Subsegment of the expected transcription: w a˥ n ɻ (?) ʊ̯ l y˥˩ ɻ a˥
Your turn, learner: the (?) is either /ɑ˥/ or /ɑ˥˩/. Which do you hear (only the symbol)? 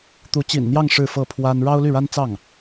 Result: ɑ˥